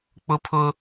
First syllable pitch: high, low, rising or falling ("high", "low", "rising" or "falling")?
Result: high